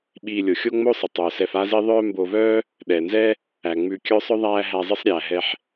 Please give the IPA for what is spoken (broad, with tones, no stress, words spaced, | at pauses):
ɓiː˨lʲo˩xʲo˥ ŋ͡mo˥sˤɪ˩tˤœː˩sɛ˨f a˦zi˦ ðˤœː˦mbo˨vœː˥ | ɗɛ˩nzɛ˦ | æ˩ ŋ͡mʉ˨ kʲœ˦sˤœ˥ ðˤæː˦ ɦæ˨zˤɪ˦sˤɾʲæː˩ɦɛ˨ħ